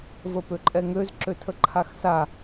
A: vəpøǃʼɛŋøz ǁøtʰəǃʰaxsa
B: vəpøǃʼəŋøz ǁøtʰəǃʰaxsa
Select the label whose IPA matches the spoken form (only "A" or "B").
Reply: A